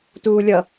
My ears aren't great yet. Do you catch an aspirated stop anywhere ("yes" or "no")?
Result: no